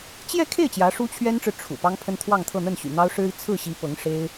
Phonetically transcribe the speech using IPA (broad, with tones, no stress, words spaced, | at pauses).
t͡ɕjɛ˥˧kʰe˥˩ɪ̯ t͡ɕjä˧˥ʂu˥t͡ɕʰɥɛ˥nʈ͡ʂɻ̩˨ ʈ͡ʂʰṵ˨˩ pɑ˥ŋpʰə˥nt̪ʰwɑ˥˧ŋt̪ʰɤ˥˧ n̪ə˥˩nɕy̰˨˩n̪ɑ˥ʊ̯ ʂɻ̩˥i˨ t͡sʰɹ̩˥˩ɕi˧˥ pɤ˧˥ŋʂe˥ɪ̯